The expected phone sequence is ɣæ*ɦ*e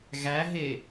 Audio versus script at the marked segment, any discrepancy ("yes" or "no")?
no